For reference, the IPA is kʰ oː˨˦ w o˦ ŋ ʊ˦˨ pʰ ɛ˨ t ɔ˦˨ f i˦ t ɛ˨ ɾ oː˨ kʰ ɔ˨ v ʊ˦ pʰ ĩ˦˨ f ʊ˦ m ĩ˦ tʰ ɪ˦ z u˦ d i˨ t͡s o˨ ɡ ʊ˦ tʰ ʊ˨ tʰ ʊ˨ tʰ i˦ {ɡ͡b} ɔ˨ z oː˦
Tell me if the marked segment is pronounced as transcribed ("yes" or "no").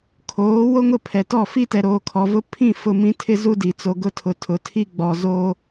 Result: yes